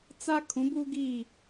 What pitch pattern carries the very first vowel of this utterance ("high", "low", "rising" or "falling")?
high